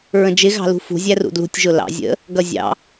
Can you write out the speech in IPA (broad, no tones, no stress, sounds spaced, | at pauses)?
ɹ ə̃ d͡ʒ ɪ ɣ ɑ̤ l ṳ f ṳ zʲ æ r ṵ d l ṳ tʲ ʒ ʊ l ɑ̰ zʲ ə̰ | ɡ ʌ zʲ ɑ̰